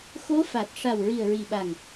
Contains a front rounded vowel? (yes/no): no